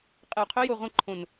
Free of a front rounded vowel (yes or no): no